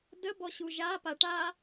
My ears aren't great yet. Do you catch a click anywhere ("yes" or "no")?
no